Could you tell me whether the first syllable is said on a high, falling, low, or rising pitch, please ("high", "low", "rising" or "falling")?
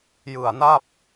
low